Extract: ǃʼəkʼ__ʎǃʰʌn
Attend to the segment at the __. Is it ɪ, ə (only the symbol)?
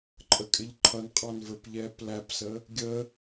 ɪ